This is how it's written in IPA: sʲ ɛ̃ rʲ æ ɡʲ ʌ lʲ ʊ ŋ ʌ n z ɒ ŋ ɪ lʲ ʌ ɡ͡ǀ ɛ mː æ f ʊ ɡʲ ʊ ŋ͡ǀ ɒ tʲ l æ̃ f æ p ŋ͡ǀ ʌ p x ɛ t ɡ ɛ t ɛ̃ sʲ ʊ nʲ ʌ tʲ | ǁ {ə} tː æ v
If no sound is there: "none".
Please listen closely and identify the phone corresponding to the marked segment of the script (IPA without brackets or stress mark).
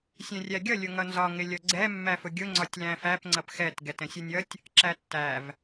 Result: æ